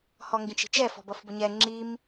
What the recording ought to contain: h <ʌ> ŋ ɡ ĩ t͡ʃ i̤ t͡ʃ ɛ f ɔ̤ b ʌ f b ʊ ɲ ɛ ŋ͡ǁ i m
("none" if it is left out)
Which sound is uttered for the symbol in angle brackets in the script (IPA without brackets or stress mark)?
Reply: ɔ